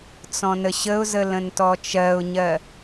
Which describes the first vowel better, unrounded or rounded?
rounded